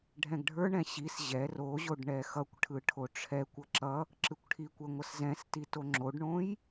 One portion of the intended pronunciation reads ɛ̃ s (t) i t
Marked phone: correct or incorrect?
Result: correct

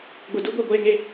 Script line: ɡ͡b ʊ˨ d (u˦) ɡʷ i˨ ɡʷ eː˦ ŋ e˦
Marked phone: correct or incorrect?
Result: correct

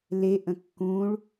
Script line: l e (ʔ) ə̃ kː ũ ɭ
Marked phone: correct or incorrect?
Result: correct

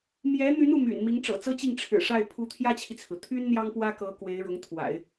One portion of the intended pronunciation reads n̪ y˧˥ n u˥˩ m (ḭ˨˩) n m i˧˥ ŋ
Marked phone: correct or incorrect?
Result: incorrect: y̰˨˩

